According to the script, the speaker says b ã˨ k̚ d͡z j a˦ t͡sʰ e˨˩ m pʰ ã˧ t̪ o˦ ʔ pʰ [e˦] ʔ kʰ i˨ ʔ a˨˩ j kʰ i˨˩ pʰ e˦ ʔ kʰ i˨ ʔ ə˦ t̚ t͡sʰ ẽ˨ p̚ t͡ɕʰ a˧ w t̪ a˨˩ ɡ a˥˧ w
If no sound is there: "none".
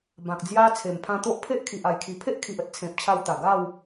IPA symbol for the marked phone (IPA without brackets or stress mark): e˦